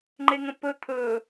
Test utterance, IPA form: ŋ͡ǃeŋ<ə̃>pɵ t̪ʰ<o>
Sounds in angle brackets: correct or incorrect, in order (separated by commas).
correct, incorrect